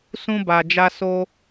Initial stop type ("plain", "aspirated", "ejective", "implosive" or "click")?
plain